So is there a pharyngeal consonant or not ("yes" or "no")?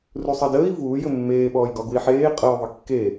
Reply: yes